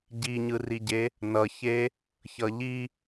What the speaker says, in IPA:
ɟiɲɯriɟe | nʌçe | çʌʎi

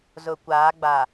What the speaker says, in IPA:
zʊ˨kʷaː˨˦ɡ͡ba˨

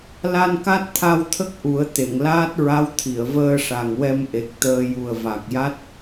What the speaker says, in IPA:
la˧nka˦˥t̚t̪ʰa˧wt̪ʰə˦˥k̚ ʔu˨˩˦ə̯ t̪e˨˩˨ŋlaː˦˥t̚ɹa˧˥w t̪ʰi˨˩˨ə̯vəː˧ʂa˨˩ŋwɛ˧m ʔe˨˩k̚t̪əː˧ ju˨˩ə̯va˨˩k̚ja˦˥t̚

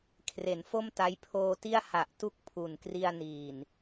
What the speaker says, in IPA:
kʰre˩˦nfo˥˩mta˦˥j pʰoː˧ti˥˩a̯ ha˨˩ʔtu˥˩k̚pʰu˨˩nkri˧a̯ niː˨˩n

